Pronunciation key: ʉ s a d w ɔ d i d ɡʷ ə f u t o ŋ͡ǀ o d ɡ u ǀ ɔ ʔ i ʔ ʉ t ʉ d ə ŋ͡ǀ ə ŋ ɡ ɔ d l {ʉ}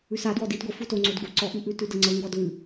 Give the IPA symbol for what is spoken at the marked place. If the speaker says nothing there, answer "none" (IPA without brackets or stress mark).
ʉ